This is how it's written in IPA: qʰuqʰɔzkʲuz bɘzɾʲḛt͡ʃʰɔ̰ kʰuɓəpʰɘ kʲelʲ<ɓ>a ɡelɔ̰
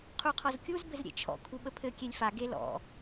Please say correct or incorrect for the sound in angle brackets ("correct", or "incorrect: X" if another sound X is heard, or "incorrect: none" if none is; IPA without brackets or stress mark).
incorrect: f